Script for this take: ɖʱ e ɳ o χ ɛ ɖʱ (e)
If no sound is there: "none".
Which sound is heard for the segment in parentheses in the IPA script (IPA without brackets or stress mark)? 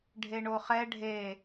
e